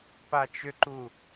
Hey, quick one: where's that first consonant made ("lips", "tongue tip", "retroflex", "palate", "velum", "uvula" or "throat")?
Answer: lips